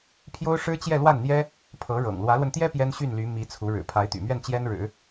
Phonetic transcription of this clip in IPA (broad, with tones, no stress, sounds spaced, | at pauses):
pʰ j o˥ ʊ̯ ʂ ɻ̩˥ t͡ɕ j ɛ˥˧ l w a˥˩ n n̪ j ɛ˥ | pʰ ɤ˧˥ ɻ ɤ̰˨˩ ŋ l w ä˧˥ l w ə˧ n t̪ j ɛ˥ p j ɛ˥ n ɕ y˥˩ n l y˧˥ m i˧˥ t͡sʰ u˧˥ ɻ ɻ̩˨˩ pʰ a˧˥ ɪ̯ t̪ y̰˨˩ m ɥ ɛ˥˩ n t͡ɕ j ɛ˥ n ɻ ɻ̩˨˩˦